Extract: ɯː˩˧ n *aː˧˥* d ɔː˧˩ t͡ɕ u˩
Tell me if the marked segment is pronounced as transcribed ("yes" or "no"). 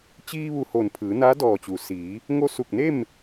yes